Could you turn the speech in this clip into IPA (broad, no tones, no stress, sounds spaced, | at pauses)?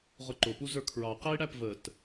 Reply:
ʁ ʊ ǃ ʊ p u z ə˞ kʰ ɹ ɑ q ɛ i̯ ɽ æ p v ə t